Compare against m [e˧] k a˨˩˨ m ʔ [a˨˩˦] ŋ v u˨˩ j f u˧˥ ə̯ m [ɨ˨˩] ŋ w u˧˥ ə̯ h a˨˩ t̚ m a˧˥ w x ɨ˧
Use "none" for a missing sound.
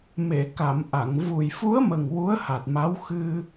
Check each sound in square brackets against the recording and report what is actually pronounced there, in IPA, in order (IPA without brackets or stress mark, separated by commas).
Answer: e˨˩˨, a˨˩˨, ə˨˩